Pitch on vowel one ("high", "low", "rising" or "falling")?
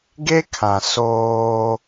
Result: high